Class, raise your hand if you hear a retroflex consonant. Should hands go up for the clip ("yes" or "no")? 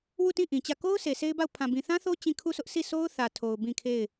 no